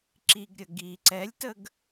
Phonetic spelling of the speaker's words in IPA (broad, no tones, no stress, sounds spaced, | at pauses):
ǁ i ɡ ɾʲ ə ɡ i ǀ ɛ lʲ t ə ɡ